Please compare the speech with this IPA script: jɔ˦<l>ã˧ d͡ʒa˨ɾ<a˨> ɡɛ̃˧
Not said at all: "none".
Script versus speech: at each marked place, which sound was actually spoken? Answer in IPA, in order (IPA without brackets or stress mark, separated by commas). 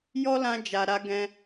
l, a˧